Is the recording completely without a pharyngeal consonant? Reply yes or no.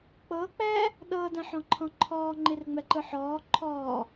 no